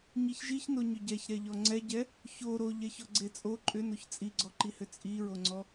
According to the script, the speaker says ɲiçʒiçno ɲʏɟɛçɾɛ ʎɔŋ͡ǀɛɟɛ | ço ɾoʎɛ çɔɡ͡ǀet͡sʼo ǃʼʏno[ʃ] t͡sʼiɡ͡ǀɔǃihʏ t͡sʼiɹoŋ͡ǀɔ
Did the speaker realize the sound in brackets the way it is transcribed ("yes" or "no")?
no